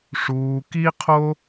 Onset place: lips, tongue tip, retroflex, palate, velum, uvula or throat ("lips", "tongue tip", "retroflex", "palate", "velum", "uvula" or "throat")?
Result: retroflex